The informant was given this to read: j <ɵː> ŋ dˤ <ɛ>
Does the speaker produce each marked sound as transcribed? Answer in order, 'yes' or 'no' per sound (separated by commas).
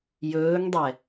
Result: yes, yes